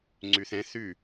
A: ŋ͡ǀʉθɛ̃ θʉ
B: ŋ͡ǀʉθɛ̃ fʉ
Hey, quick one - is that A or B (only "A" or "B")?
A